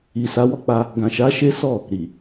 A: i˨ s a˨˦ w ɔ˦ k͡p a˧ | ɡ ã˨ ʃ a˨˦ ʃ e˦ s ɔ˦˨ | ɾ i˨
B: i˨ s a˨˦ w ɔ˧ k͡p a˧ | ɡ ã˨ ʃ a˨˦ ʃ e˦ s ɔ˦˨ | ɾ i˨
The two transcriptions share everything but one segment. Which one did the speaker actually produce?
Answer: A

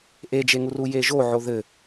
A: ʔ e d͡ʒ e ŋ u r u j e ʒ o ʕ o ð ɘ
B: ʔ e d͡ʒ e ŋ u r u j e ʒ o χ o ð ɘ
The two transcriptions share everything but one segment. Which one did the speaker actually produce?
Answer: A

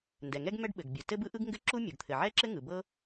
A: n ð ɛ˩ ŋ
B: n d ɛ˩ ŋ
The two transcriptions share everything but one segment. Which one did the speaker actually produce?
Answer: B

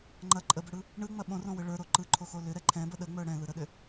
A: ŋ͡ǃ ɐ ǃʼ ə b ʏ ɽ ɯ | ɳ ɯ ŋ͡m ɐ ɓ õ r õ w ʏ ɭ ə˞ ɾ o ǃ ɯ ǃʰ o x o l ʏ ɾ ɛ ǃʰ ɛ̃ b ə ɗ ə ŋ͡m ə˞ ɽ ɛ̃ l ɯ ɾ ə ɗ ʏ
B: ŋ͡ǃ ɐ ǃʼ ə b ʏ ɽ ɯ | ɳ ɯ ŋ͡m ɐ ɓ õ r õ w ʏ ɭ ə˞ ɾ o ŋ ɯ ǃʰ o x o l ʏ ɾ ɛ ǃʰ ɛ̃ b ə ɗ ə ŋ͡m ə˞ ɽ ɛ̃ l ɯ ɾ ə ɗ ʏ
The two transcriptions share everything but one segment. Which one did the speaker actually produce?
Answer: A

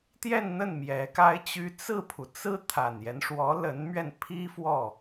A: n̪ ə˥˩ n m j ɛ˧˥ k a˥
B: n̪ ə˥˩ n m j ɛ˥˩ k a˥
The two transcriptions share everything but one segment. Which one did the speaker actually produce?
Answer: A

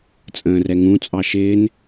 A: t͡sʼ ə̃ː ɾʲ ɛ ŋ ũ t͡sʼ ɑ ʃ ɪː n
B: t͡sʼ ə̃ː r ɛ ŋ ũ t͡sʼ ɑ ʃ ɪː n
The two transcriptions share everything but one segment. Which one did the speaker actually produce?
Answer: B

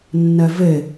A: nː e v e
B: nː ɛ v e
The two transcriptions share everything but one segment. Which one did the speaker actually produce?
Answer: B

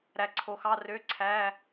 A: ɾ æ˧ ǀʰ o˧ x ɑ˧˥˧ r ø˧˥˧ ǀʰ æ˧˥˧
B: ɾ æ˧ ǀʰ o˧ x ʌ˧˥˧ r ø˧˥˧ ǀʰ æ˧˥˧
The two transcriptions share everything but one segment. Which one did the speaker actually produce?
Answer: A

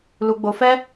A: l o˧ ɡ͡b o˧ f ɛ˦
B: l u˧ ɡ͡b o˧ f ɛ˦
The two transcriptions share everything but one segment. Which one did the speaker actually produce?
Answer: B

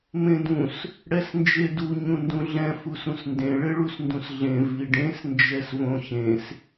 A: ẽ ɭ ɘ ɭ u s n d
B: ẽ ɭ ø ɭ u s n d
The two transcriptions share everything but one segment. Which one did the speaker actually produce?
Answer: A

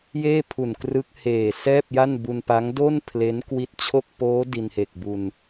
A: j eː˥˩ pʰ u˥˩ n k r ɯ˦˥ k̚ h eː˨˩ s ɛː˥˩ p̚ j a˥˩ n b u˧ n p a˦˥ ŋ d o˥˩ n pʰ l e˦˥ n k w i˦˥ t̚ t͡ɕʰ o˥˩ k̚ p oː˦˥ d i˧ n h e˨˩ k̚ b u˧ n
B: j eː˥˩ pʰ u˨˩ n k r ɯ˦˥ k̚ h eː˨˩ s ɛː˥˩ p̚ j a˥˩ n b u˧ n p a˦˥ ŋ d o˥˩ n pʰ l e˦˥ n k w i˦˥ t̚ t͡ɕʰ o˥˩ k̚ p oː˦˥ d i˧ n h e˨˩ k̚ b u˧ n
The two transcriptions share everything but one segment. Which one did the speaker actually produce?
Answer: B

